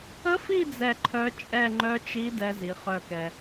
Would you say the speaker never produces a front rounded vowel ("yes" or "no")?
no